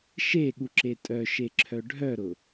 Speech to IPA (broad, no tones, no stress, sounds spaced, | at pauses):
ʃ e ɠ u ǁ e tʼ œ ʃ e ǁʰ œ ɖʱ œ ɾ ʊ